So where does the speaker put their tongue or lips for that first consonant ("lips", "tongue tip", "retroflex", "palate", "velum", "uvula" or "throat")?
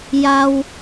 palate